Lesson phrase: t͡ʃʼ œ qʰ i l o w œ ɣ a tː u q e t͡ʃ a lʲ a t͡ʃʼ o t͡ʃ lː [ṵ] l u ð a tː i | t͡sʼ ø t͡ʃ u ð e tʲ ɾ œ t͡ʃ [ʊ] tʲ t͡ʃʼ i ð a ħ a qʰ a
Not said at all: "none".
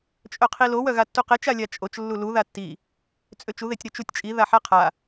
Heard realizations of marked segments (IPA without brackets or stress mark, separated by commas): u, u